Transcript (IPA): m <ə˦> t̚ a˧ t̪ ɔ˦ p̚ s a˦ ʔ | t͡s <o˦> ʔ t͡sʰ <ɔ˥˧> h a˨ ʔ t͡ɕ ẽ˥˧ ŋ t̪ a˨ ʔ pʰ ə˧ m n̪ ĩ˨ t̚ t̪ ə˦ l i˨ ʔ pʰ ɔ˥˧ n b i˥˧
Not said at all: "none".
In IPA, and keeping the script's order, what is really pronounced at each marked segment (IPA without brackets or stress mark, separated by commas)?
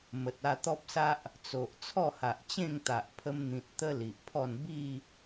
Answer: ə˨, o˨, ɔ˥˧